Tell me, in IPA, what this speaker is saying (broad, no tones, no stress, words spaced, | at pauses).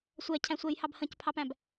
sʷɛcʰæ̃sʷɛjhɑb hə̃cpʰɑpæ̃b